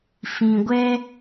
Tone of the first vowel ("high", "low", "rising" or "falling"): low